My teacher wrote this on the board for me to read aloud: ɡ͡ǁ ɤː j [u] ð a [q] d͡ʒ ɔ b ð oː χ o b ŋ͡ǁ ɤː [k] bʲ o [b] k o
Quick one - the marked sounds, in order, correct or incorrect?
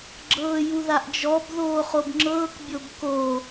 correct, incorrect, correct, correct

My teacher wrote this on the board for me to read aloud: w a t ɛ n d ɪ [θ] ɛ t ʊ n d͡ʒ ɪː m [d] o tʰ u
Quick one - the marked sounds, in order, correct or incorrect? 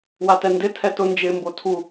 incorrect, incorrect

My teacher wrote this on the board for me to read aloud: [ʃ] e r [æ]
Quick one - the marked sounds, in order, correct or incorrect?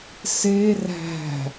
incorrect, incorrect

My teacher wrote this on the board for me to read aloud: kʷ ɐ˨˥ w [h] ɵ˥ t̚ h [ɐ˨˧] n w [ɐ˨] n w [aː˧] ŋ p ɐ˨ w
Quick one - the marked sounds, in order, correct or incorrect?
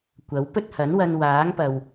incorrect, incorrect, incorrect, incorrect

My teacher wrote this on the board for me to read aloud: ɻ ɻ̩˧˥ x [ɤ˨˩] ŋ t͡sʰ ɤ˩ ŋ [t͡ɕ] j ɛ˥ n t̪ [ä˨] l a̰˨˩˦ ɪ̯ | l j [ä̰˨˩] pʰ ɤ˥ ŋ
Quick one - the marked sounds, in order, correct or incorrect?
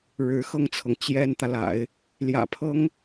incorrect, correct, correct, correct

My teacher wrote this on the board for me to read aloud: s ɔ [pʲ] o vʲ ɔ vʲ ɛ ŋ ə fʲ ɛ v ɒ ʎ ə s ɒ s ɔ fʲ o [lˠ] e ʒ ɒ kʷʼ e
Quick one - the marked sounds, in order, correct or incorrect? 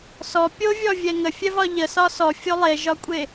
correct, correct

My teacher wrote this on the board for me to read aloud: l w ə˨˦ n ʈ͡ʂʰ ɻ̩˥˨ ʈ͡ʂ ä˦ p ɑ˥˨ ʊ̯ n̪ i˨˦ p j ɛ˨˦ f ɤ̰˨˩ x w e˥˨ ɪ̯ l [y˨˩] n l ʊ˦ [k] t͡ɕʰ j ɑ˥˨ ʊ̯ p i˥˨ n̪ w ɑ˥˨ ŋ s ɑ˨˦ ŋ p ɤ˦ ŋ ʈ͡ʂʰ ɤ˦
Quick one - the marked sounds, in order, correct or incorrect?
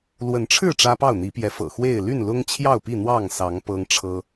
incorrect, incorrect

